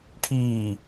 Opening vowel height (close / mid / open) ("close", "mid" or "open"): close